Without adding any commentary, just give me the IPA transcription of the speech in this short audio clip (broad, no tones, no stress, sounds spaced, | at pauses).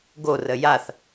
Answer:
ɡ o r ə j a θ